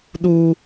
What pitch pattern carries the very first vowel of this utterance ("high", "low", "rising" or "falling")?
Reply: high